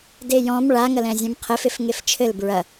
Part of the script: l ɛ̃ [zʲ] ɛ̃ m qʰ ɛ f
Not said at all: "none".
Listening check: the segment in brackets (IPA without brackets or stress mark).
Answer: zʲ